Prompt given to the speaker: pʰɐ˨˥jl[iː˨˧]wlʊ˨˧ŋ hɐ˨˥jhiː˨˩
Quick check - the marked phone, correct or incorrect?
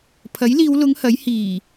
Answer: correct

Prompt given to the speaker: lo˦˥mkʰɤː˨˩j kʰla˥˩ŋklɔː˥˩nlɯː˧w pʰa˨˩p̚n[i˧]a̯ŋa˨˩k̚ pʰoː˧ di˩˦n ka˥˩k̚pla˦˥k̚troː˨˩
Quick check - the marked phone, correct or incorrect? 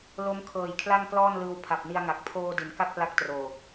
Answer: correct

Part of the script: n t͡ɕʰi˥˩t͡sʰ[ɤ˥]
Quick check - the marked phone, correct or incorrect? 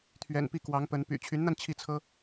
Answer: correct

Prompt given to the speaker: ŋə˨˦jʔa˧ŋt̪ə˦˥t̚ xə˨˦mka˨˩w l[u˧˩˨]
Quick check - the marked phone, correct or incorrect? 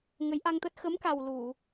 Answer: correct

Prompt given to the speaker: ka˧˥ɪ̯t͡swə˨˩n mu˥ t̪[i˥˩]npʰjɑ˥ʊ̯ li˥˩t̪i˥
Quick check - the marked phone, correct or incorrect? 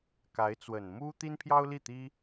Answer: incorrect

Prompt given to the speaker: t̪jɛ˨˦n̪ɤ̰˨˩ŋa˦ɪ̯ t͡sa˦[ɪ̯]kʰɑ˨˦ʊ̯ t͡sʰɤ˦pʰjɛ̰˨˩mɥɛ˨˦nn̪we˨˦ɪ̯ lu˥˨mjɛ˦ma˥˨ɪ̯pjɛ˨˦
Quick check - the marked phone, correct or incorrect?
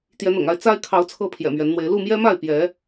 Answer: correct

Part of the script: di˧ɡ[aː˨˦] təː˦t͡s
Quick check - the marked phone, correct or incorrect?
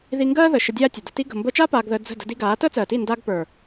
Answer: correct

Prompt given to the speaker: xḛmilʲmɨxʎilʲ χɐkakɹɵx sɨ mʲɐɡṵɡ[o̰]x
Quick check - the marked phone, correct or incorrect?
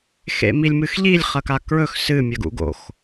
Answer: correct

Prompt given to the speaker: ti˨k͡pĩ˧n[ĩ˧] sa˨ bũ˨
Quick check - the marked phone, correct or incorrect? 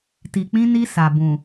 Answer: incorrect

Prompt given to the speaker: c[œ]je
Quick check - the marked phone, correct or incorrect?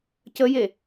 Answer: incorrect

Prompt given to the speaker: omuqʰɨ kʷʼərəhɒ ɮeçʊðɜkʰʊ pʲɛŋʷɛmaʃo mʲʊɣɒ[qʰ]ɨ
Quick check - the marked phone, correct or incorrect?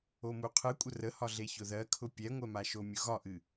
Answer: incorrect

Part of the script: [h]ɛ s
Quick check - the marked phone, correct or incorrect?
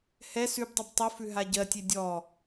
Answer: correct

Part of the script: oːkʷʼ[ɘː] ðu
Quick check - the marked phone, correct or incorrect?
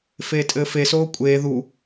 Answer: incorrect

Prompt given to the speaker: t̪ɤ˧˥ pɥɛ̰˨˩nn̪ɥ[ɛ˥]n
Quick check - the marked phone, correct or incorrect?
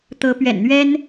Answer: correct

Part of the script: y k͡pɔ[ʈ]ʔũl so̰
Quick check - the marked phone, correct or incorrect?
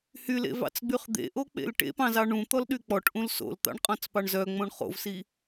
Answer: correct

